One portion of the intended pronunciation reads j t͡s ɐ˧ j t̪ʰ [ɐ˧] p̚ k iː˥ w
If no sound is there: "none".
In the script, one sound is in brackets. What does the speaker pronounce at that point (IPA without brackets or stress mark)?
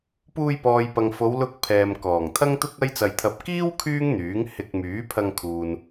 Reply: ɐ˧